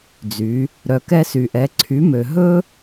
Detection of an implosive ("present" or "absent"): absent